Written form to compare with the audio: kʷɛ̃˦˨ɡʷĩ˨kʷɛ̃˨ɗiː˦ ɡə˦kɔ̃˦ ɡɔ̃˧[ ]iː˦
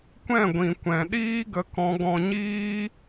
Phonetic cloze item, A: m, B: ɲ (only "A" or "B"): B